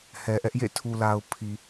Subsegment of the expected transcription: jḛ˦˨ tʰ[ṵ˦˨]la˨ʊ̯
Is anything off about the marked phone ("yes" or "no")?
yes